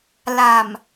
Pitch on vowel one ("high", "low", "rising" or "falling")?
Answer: low